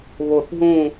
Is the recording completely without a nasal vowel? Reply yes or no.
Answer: no